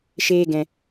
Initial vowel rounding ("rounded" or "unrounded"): unrounded